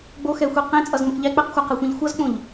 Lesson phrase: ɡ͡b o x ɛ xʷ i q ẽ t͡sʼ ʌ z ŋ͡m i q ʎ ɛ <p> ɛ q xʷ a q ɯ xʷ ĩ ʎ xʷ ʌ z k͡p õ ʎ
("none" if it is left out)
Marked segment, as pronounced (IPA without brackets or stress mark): k͡p